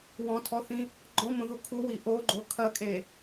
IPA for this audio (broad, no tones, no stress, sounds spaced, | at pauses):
w ɔ̃ tʰ ɔ θ ĩ | ɡ͡ǃ ɔ̃ m õ ð u kʰ u w i ʔ o ɡ͡ǃ o kʰ ɐ kʼ e